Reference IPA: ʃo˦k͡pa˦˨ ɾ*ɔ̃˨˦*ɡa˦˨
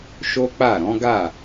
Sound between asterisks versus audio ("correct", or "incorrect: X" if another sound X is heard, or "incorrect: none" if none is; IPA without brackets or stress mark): correct